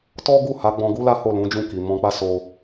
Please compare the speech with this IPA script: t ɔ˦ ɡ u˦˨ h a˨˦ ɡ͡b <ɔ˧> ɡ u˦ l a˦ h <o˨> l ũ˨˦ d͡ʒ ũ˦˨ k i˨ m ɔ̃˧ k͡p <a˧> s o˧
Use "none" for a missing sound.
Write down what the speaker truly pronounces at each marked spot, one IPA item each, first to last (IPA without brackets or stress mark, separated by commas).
ɔ̃˧, o˦˨, a˦